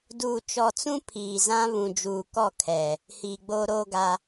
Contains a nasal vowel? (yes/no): yes